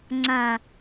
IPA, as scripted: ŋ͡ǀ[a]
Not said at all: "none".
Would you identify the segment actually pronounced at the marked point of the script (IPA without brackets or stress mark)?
ã